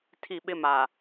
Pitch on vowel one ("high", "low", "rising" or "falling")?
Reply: falling